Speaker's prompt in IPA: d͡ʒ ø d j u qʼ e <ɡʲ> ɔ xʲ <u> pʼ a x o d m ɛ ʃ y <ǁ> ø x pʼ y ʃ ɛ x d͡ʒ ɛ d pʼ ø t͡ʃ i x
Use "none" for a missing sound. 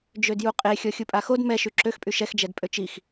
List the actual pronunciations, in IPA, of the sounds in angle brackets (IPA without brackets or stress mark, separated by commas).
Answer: xʲ, u, ǁ